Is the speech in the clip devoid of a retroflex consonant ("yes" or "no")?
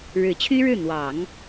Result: no